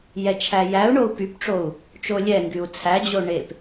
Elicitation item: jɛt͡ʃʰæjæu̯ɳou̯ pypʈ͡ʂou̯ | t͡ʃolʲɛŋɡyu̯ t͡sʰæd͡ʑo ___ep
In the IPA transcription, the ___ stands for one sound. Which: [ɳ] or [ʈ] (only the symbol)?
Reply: ɳ